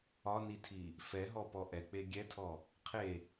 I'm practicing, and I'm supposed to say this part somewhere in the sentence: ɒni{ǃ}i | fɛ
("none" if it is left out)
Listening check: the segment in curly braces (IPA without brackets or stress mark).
tʰ